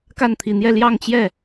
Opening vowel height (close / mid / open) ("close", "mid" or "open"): open